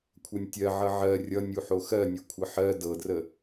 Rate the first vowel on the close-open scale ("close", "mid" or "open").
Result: mid